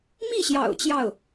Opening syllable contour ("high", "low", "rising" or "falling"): falling